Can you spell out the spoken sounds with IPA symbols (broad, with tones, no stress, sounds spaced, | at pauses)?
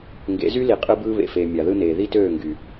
ŋ ɡ ḛ˨˦ z y˦ l i˨ qʼ ɯ˦ b ɯː˦ β ḛ˨ f eː˨ mʲ ɑ˨ ð ɯ˦ n eː˨ ð i˦ t øː˦˨ ŋ ɡ y˨